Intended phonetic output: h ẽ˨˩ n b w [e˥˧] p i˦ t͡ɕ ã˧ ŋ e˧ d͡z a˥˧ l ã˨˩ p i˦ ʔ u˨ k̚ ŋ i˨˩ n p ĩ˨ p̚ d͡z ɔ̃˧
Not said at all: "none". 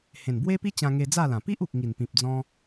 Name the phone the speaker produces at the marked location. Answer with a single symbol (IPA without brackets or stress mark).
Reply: e˦